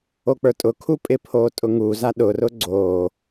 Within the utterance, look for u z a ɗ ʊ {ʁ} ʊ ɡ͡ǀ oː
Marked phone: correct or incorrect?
incorrect